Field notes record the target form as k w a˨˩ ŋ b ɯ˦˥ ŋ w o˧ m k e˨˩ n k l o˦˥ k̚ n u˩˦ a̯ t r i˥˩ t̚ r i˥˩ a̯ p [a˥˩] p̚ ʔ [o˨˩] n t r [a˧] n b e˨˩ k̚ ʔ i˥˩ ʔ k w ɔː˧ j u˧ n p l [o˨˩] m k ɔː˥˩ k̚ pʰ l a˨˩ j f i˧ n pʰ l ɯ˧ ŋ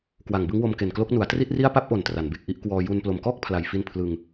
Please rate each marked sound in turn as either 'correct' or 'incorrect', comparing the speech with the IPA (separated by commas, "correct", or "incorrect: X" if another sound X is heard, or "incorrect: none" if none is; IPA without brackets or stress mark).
correct, correct, incorrect: a˩˦, correct